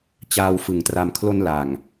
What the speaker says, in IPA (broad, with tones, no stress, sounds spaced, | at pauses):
t͡ɕ aː˧ w f ɯ˩˦ ŋ t r a˧ m kʰ l o˧ n l a˨˩ ŋ